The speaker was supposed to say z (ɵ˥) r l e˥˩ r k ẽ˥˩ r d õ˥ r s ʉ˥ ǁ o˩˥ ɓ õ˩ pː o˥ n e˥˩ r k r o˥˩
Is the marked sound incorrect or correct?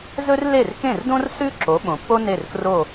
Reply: correct